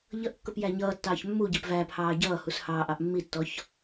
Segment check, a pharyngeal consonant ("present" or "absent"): absent